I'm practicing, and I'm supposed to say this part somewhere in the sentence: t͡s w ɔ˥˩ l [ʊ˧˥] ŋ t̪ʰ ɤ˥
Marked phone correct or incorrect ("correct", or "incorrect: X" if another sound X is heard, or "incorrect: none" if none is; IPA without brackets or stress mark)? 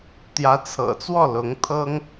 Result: correct